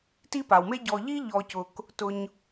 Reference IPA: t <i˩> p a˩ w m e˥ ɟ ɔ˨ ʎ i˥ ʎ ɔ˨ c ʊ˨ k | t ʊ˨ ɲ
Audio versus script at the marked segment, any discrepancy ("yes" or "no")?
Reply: yes